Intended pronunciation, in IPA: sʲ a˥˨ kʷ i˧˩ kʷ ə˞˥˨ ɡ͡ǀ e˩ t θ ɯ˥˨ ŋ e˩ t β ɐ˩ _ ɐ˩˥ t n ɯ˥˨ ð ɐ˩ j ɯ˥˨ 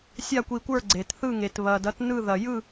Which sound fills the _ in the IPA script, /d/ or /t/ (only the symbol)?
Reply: d